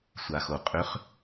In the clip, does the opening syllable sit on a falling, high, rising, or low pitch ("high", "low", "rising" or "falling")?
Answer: low